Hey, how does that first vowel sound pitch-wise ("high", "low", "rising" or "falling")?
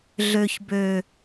low